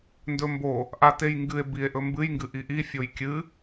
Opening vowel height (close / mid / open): mid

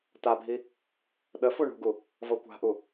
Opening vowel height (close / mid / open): open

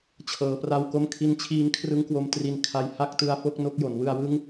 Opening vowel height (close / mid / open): mid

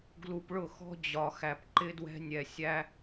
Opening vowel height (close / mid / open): close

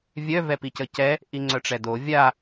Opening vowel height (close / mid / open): mid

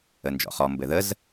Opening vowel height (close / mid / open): mid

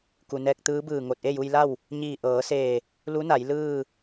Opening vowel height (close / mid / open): close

